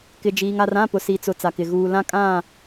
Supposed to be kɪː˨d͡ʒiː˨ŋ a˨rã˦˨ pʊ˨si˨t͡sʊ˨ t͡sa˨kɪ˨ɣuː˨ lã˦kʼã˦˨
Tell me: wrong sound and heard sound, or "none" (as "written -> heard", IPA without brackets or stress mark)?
ɪː˨ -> ɪ˨